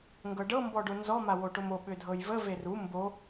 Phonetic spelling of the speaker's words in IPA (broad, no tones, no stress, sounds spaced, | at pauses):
ŋ ɡ ɤ ɖ ɤ m b ɔ ɖ o n z ɔ m a w o ʈ o m o ɓ ʏ dʱ ɤ j v ə v e r u m b o